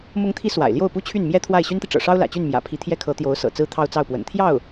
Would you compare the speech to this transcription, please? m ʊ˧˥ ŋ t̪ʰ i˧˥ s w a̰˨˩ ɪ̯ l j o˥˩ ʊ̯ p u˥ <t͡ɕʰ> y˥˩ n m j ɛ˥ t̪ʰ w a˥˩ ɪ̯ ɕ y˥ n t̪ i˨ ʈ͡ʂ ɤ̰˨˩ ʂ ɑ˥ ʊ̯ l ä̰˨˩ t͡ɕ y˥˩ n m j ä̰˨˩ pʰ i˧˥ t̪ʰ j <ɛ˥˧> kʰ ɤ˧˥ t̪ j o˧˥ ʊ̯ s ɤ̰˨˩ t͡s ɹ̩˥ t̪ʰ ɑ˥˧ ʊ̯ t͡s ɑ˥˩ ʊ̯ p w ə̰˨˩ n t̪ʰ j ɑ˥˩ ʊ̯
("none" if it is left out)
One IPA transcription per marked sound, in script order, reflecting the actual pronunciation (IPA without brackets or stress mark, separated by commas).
t͡ɕʰ, ɛ˥